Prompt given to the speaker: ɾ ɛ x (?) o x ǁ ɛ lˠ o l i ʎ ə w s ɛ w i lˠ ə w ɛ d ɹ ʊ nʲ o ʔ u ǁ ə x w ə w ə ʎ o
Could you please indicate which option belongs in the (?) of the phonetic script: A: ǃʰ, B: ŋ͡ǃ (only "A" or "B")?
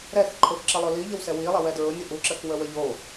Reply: A